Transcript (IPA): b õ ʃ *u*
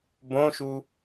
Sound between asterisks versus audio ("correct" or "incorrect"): correct